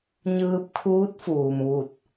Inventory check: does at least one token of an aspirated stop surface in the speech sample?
yes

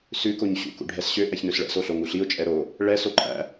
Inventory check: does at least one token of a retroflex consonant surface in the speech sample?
yes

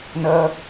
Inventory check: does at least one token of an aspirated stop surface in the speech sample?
no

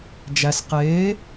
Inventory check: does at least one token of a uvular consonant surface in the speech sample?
yes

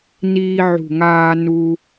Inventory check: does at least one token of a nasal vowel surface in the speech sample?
no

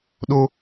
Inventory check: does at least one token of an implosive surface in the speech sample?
yes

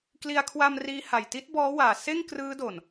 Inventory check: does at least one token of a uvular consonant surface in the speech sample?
no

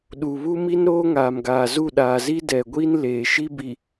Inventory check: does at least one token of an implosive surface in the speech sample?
yes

